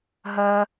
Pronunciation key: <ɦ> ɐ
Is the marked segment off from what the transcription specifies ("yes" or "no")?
no